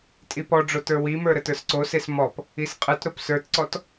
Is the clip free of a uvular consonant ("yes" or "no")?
no